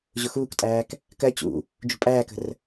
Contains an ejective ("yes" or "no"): yes